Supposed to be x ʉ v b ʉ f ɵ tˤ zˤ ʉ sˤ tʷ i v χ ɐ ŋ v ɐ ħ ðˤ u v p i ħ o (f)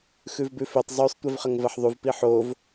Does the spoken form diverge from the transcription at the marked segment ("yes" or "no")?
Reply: yes